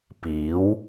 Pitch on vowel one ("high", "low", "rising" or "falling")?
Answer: rising